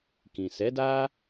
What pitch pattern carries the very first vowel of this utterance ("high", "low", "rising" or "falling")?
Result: low